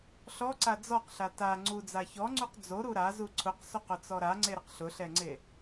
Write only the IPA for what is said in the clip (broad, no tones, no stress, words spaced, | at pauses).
ɬɔǀa d͡zɔqɬa ta ŋ͡ǀud͡za çɔŋ͡ǀuq d͡zoɾu ɾazu ǀʰʊqsoqʊt͡sɔ ɾaŋ͡ǀeɾɪq ɬʊɬɛŋ͡ǀe